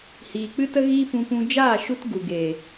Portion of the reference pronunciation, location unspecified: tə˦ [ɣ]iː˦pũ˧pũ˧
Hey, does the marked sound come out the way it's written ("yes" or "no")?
yes